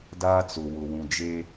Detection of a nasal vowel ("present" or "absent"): present